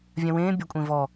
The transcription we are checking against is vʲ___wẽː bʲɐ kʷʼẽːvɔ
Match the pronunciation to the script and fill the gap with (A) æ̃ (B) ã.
B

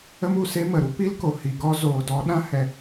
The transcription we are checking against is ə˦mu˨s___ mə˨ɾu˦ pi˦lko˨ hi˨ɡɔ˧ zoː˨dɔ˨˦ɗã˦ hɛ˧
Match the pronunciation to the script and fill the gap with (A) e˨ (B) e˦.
B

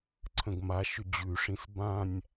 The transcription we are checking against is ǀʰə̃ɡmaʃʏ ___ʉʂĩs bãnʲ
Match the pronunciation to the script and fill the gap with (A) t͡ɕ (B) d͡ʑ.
B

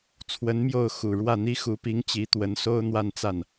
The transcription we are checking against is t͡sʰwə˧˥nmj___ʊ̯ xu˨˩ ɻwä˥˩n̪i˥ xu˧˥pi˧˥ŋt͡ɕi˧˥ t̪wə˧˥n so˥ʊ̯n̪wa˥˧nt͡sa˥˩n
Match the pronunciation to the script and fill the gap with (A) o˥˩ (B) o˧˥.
A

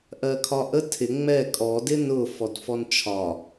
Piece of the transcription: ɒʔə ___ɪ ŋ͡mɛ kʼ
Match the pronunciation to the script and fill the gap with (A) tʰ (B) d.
A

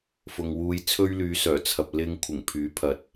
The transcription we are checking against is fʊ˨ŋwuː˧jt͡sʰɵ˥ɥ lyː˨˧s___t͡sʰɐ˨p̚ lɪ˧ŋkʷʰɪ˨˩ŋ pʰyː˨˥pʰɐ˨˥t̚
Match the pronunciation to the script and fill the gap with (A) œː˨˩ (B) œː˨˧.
A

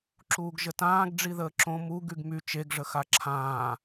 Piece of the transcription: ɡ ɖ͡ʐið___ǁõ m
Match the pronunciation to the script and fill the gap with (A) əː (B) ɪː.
A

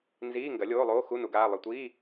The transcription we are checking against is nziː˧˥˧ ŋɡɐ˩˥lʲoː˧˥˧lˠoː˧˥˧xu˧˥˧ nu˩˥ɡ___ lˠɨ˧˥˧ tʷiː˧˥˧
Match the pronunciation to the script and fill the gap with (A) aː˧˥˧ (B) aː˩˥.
A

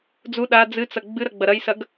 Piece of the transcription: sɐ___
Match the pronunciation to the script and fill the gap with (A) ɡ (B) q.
A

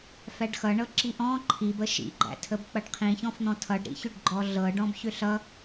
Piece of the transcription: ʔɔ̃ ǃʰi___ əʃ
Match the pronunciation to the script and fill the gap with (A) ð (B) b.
B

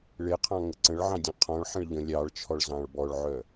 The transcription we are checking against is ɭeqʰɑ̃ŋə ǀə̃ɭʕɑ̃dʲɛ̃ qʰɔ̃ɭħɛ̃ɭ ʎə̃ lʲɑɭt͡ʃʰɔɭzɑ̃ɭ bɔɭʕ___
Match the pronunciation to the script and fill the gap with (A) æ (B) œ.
B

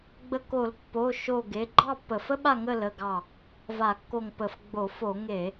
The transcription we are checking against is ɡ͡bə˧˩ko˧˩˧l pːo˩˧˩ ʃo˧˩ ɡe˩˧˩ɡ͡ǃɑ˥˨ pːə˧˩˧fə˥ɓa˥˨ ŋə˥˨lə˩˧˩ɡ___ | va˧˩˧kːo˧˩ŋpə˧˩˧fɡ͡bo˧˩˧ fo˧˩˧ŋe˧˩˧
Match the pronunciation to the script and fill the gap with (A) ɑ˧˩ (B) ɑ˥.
A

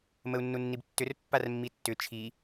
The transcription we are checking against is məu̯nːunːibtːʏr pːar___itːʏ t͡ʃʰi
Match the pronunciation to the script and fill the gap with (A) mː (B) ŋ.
A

